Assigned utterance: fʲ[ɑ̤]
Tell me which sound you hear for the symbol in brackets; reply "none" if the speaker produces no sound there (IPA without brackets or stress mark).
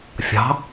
ɑ̤